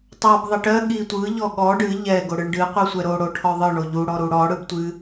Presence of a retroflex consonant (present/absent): present